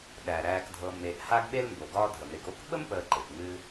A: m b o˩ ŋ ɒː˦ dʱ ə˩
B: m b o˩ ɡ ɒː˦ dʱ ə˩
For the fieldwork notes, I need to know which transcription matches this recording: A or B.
B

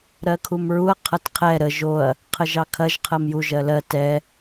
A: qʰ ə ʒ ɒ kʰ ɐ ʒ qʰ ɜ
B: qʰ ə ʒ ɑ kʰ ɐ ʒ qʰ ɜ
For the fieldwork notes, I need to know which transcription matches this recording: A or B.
B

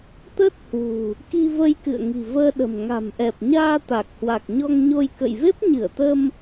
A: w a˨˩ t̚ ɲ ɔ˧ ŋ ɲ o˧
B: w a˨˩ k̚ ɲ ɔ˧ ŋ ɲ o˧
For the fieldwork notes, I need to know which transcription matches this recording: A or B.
B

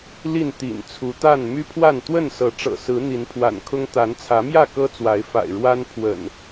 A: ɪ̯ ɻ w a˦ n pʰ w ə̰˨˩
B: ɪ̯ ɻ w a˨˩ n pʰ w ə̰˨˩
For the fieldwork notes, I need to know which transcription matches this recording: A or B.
A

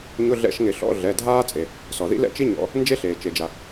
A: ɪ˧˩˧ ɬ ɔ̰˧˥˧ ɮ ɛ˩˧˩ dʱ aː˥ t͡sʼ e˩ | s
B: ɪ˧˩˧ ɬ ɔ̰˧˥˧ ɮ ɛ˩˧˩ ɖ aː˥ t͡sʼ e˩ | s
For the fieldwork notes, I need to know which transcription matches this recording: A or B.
A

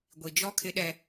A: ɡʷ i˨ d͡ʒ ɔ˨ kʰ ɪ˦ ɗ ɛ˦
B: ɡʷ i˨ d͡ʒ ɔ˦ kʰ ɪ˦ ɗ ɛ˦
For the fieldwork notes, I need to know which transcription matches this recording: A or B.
B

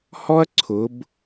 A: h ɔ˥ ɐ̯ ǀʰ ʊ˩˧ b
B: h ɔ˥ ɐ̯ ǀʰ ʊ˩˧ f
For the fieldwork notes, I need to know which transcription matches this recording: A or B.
A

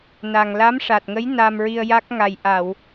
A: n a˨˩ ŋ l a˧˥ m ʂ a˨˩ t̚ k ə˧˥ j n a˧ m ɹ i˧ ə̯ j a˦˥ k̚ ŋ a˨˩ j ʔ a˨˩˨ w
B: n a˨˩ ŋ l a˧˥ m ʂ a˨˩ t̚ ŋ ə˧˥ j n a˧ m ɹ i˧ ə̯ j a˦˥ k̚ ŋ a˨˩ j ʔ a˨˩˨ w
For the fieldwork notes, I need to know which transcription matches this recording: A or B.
B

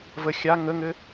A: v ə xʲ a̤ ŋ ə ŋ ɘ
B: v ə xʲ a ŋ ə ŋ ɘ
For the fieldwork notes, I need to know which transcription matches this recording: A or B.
B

